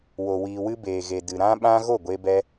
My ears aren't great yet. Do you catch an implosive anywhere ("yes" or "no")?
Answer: yes